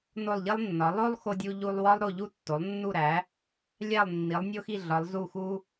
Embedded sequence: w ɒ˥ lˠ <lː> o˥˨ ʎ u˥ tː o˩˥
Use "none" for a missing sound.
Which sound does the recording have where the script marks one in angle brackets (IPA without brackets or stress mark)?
ɾ